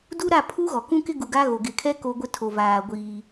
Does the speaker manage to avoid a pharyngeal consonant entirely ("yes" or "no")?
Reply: yes